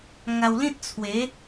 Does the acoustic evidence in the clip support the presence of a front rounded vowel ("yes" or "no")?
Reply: no